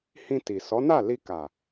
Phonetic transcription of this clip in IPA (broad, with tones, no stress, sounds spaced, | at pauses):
h ĩ˧ t i˨ s ɔ˨˦ n a˦˨ l i˧ k a˨